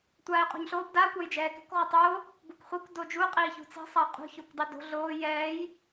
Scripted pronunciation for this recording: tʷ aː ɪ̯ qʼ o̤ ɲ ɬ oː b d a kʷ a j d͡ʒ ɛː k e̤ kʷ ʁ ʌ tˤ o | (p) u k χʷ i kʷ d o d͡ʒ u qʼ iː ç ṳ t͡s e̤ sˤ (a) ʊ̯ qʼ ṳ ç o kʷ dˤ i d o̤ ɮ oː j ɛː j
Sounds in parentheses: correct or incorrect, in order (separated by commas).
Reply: incorrect, correct